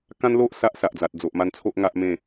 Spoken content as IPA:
k ã˦ n l o˦ ʔ s a˦ ʔ s a˨ ʔ d͡z a˨ t̚ d͡z o˨ ʔ m a˧ n t͡sʰ o˦ ʔ ŋ a˦ ʔ m ẽ˥˧

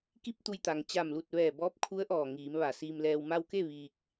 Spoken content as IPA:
k i˥˨ p̚ t̪ u˧ j t̪ a˩ ŋ t͡ɕ a˧˩ m l u˧˩ t̚ ʋ ɛː˧˩ b ɔː˧˥ p̚ kʰ u˧˥ ə̯ ʔ ɔː˧˩ ŋ iː˩˧ m ʋ a˧˩ s iː˧ m l ɛː˧ w m a˧ w k e˥˨ ʋ iː˧ k̚

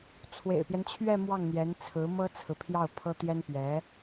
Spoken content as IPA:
t͡sʰ w ḛ˨˩ ɪ̯ p j ɛ˦ n t͡ɕʰ ɥ ɛ˥˧ m w ɑ˥˩ ŋ n̪ j ɛ˧˥ n t͡sʰ ɹ̩˧˥ m ɤ˥ t͡sʰ ɹ̩˨ pʰ j ɑ˥˩ ʊ̯ pʰ ɤ˥ t̪ j ɛ˥ n p ɥ ɛ˧˥

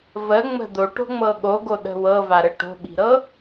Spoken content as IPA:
v ə ŋ͡m ə̤ d̪ o ʈ o̤ ŋ͡m ɤ ɠ o ɡ o ɗ ə̤ w ɤ v a ɾ ə ʈ o̤ ɓ i̤ ɾ ɤ

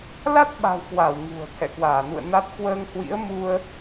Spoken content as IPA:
l a˦˥ t̚ ɓ a̤˨˩ w k w a˧˩ w ŋ ṳ˨˩ ə̯ t̪ʰ ɛ̰˧˨ k w aː˧˩ n ṵ˧˨ ə̯ n a˦˥ t̚ k w əː˧ ŋ h w ḭ˧˥ ə̯ m u˧ ə̯

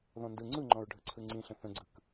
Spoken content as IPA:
ð ɔ̃ n d ɯ ŋ͡ǀ ɯ ŋ͡ǃ ɔ̃ ɹ ɖʱ ɯ ǀʰ ɯ ŋ͡ǀ ĩ ɬ ə̃ θ ə̃ ɡ͡ǀ ɯ k

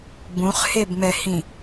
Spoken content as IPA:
b ũ χ h e b m ɛ h ĩ

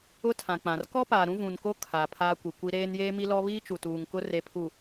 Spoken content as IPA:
ʊ˦ tʰ ã˨ k͡p ã˨ r k ɔ˦ p aː˨ ɾ ũ˦ v ũ˨ n k o˦ kʰ a˨ pʰ aː˦ kʷ i˨ kʷ i˦ ɾ eː˦ n j eː˦ m i˦ l ɔ˦ β iː˦ t͡ʃ u˨ t uː˨ ŋ k ʊ˦ r e˨ pʰ u˨

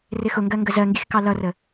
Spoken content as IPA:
r ɪ x ʊ ŋ ɡ ɜ ŋ ɡ ə z ɜ ŋ ɡ i x k ɑ l ʌ r ə

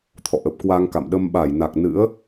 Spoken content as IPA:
t̪ʰ ɔ̰˧˨ ʔ ə˨˩ p̚ k w a˧ ŋ k a̰˧˨ m ɗ ə˧ m ɓ a˧˩ j n a˨˩ k̚ n ɨ̰˧˥ ə̯

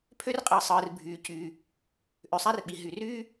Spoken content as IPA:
pʰ ø˥ r qʼ ɯː˩ sˤ ɯː˩ r bʱ yː˩ c yː˩ | ʔ ø˩ sˤ æ˥ r ɓ i˩ ɦ y˩ r yː˥

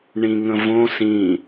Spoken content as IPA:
ɳ ĩ ŋ ə̃ v õ s ĩ

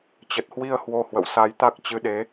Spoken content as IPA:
t͡ɕ ə˨˩ t̚ h w i˧ ə̯ h w o˧ h w ə̰˧˨ w s a˨˦ j t̪ a˦˥ k̚ t͡ɕ ɨ˨˦ ɗ e˨˦

